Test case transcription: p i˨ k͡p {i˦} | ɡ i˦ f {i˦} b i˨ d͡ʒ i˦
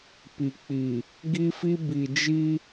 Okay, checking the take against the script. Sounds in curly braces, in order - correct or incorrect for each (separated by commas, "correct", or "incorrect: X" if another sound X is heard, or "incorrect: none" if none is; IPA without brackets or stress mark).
incorrect: i˨, correct